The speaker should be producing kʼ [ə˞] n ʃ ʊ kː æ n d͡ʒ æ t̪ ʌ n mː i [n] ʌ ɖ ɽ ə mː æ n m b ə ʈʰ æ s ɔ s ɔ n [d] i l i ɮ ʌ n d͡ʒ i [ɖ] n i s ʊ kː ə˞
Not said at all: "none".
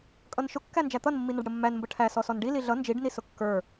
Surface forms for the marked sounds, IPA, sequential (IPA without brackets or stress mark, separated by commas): ʌ, n, ɖ, ɖ